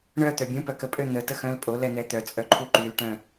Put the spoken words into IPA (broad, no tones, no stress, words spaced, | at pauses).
ɳœ t̪œbʲũpœ kəpʼø n̪ə təxœ̃lpʼolɛ n̪ɛt̪œt͡sʼœ ǃʰuǃylʈœ̃